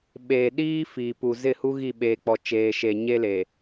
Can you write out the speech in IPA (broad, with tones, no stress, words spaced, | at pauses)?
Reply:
ɓeː˨ɗiː˦ fiː˨pu˨zɪ˦˨hu˦ ɣi˦˨ ɓeː˨k͡pɔ˨ t͡ʃeː˨ʃe˨ɲe˦le˨